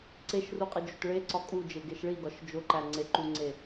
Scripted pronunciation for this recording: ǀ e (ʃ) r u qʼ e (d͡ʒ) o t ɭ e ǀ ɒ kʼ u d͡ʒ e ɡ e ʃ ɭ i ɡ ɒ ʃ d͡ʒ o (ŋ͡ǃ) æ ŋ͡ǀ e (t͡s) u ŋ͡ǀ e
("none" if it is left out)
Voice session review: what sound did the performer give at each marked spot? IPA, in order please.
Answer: ʃ, d͡ʒ, ǃ, ǃ

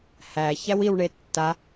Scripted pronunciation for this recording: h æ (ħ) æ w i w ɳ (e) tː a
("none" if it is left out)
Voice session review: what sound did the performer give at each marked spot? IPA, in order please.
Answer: ç, e

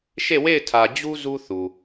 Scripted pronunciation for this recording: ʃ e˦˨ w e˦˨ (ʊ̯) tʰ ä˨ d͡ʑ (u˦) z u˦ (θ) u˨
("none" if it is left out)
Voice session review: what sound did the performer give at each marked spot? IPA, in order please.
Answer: ɪ̯, u˦, θ

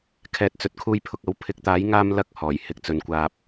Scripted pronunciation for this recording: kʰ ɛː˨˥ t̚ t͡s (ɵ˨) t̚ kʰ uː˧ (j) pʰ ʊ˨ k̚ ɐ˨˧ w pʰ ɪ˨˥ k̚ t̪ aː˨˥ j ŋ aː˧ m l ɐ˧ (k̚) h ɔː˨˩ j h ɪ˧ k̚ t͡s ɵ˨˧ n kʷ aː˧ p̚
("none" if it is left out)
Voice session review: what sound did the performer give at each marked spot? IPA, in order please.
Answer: ɵ˨, j, k̚

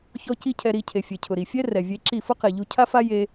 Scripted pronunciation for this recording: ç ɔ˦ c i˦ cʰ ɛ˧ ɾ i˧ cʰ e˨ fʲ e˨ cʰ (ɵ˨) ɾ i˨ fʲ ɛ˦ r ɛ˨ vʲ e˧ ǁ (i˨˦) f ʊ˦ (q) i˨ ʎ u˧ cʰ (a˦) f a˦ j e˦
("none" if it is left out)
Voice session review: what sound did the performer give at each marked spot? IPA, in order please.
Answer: ʊ˨, i˦˨, q, a˦

